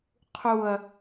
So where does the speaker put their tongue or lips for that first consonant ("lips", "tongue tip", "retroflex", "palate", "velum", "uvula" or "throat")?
uvula